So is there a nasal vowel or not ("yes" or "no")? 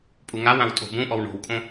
yes